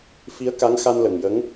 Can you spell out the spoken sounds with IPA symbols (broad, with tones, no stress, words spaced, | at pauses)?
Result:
fi˧˥ə̯ka˧˥ŋ xa˧nlə˨˩ŋjə˧˥ŋ